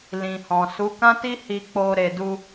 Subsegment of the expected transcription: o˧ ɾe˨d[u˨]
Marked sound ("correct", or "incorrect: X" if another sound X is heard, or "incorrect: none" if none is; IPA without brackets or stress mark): incorrect: u˧